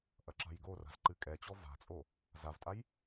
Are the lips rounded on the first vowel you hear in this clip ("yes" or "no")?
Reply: no